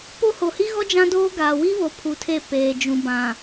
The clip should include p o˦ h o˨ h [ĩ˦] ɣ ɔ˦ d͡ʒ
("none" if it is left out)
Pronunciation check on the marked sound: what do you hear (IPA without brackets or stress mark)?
i˦